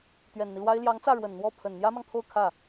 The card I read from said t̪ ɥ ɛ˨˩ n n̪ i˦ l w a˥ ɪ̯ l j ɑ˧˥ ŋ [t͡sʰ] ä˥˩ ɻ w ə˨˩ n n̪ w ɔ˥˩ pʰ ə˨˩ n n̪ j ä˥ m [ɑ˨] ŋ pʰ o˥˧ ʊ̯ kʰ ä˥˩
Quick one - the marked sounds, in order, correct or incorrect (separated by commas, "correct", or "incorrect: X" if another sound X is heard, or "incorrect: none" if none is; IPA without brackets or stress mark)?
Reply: incorrect: t͡s, correct